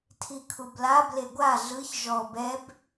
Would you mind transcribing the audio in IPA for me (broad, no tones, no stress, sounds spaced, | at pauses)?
tʰ i kʰ u b l a b l e ɡʷ a ɮ ɯ ç ʒ ɔ b ɛ b